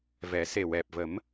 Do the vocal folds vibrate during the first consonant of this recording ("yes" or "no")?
yes